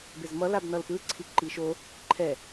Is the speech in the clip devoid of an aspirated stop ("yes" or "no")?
no